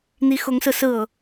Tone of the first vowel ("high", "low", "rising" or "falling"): rising